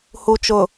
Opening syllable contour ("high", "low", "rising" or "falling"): low